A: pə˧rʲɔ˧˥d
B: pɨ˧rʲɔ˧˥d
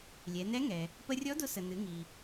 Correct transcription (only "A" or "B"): A